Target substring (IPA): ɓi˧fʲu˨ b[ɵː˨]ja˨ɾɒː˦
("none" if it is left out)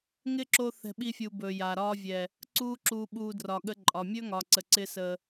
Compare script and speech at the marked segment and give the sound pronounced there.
ɵː˨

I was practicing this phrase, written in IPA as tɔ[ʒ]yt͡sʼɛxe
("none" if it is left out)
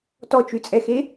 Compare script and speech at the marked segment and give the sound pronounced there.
t͡ʃ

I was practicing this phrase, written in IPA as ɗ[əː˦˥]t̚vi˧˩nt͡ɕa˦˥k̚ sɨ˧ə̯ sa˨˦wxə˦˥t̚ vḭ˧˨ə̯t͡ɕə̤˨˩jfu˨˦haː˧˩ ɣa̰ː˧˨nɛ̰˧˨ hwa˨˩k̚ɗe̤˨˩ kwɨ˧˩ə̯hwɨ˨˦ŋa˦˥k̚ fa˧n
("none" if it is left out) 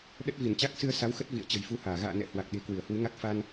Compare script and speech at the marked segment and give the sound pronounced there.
ə˦˥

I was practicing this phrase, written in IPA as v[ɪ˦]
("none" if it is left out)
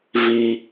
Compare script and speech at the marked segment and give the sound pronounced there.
i˦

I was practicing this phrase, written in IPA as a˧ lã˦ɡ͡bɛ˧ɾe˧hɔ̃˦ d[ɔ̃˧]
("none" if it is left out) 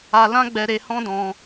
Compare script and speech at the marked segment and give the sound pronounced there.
ɔ̃˧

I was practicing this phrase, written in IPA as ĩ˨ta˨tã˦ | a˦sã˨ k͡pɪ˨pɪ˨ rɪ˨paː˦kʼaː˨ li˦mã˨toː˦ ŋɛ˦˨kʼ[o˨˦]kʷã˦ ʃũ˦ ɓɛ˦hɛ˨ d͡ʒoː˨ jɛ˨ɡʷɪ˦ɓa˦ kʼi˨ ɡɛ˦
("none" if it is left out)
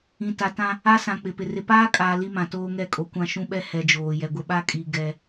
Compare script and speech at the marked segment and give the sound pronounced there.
o˨˦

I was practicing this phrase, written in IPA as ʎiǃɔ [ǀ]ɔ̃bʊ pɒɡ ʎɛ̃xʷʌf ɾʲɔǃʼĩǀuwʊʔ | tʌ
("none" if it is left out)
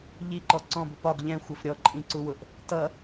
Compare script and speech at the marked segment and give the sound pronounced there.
ǀ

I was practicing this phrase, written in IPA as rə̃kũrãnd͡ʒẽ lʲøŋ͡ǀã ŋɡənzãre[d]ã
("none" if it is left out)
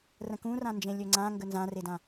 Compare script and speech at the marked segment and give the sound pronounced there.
d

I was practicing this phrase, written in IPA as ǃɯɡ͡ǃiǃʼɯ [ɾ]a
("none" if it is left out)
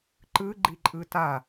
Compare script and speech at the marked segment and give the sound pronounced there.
t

